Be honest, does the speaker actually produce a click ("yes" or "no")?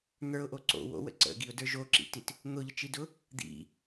yes